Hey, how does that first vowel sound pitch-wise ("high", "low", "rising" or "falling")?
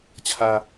high